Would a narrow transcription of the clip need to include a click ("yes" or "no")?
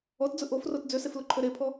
yes